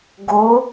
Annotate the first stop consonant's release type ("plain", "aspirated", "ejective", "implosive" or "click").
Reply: plain